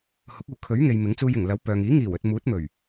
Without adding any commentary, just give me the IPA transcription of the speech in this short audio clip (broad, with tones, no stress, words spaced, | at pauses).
hʊ˨˥k̚uː˨ kʰɵ˨˥ɥŋe˨j mɪ˨˥ŋt͡suː˧jɪ˨˩ŋ lɐ˨˥wpœː˨ŋiː˨˥ ŋiː˨˩wɵ˨t̚ muː˨˥t̚mɵ˨˩ɥ